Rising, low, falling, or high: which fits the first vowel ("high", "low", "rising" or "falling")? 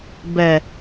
low